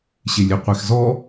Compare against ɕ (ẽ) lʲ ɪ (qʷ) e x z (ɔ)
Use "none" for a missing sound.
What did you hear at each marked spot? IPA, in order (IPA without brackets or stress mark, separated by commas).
e, qʷ, ɔ